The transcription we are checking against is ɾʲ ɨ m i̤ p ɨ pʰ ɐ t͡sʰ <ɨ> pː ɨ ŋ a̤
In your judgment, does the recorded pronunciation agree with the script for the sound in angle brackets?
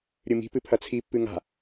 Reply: no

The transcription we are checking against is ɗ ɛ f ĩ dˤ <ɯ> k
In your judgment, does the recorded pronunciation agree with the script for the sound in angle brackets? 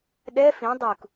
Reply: no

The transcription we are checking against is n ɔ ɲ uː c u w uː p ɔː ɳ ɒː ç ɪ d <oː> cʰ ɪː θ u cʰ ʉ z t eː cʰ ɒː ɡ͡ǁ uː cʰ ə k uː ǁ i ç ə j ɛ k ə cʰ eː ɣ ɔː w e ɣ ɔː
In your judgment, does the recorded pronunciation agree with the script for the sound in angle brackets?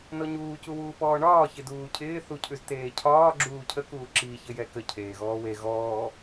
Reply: no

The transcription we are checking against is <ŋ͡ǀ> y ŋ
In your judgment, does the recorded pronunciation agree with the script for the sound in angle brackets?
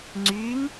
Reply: yes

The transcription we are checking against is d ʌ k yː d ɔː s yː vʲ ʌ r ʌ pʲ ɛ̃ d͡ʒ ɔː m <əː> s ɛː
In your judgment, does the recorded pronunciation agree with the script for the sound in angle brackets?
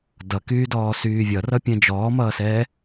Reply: no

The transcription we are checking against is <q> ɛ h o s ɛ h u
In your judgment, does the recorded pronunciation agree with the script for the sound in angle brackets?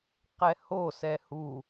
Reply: yes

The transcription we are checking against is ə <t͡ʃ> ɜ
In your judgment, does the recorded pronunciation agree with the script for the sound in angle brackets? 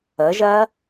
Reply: no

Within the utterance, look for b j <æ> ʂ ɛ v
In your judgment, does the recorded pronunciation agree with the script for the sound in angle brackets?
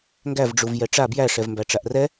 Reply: yes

